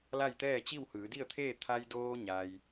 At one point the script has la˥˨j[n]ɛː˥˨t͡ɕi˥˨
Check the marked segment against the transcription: incorrect: t̪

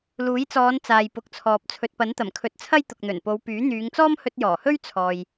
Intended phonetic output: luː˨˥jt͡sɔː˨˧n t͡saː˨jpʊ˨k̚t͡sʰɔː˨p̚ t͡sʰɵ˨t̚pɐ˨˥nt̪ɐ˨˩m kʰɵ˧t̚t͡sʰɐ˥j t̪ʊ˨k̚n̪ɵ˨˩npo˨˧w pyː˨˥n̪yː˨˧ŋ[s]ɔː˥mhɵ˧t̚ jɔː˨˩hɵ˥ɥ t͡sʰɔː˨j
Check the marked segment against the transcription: incorrect: t͡s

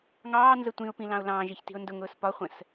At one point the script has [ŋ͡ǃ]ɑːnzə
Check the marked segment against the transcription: incorrect: ŋ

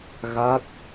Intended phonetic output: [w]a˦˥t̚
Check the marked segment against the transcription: incorrect: ɣ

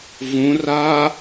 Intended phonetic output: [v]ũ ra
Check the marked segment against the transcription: correct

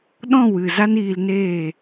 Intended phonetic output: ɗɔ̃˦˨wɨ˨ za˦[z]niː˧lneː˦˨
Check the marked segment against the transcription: incorrect: none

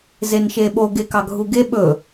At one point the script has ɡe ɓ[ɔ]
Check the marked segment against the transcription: incorrect: ɵ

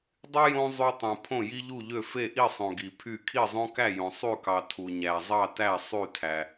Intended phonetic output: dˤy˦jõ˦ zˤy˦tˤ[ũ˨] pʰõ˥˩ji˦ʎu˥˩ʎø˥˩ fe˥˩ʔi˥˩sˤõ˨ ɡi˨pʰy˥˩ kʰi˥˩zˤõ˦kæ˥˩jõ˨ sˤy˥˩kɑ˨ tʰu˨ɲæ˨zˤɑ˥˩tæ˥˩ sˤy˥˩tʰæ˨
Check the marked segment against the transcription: correct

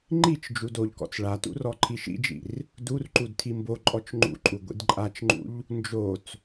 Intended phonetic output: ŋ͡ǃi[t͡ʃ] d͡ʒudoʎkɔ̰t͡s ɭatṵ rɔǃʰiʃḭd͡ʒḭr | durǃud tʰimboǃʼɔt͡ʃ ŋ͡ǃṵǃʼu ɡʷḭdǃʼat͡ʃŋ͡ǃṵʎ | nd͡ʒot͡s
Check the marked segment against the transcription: correct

